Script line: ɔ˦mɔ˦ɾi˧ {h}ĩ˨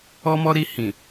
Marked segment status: correct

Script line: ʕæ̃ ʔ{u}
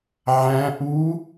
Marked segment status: correct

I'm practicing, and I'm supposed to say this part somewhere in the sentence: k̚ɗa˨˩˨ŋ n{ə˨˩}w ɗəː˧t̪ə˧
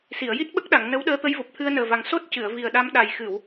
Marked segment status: incorrect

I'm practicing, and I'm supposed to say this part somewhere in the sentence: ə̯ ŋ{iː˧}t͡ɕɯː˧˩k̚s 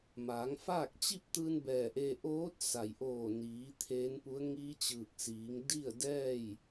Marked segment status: incorrect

